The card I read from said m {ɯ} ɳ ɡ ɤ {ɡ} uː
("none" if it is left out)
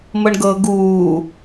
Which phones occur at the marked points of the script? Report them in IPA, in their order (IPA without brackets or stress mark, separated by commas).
ɤ, ɡ